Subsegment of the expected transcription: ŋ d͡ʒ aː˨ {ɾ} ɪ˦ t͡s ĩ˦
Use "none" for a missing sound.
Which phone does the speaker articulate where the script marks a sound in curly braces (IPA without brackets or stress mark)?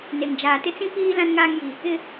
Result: t